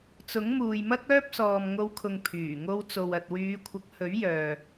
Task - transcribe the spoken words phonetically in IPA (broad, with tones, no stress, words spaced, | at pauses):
t͡sʊ˨˥ŋmuː˨jmɐ˥k̚ œː˥p̚sɔː˨mŋo˨˧wkʰʊ˨ŋ pʰyː˨˩ŋo˧wt͡so˨w ɐ˨t̚wyː˨˧kʷʰɐ˨˥k̚ hɵ˨˥ɥjœː˨